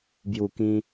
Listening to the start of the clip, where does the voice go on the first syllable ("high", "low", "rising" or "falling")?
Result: high